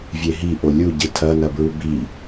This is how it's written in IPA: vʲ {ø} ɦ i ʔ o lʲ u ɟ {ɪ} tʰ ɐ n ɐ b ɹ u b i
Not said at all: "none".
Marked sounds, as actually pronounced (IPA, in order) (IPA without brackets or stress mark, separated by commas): e, ɨ